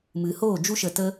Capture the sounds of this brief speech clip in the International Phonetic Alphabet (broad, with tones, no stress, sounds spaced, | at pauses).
m ɨ˨ h oː˦˨ d͡ʒ u˦ ʃ ə˧ t ə˦